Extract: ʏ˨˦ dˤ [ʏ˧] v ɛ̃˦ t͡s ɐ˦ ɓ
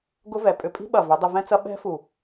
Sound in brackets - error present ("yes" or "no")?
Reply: no